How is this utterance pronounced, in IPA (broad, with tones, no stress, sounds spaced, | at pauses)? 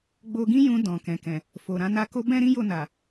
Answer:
ɡ͡b o˧ ɡ ĩ˦ j ũ˧ d ɔ̃˨ k ɛ̃˨ k ɛ̃˨ | f o˨ ɾ ã˧ n a˧ k o˦ b ɛ̃˦ ɾ ĩ˦ j o˦˨ n a˨